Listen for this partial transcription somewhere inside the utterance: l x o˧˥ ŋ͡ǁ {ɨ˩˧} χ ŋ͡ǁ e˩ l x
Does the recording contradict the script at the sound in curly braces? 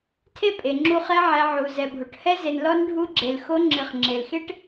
no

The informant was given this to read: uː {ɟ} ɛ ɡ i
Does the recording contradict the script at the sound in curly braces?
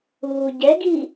no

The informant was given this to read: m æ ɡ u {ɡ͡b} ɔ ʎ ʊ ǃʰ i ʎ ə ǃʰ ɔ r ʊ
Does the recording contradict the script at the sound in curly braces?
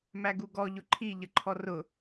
yes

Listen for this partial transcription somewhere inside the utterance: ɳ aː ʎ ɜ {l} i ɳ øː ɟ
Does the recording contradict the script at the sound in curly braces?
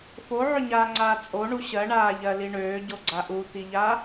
no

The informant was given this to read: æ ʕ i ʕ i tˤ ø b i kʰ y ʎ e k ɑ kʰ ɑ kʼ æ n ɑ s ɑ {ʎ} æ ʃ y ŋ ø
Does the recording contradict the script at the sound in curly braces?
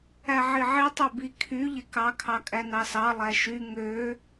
yes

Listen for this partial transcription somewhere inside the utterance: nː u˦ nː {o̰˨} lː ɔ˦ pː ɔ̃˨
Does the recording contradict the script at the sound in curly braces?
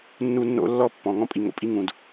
yes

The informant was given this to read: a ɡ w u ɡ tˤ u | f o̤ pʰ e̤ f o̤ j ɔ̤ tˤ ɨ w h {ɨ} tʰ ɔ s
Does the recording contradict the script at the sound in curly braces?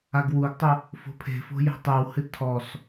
no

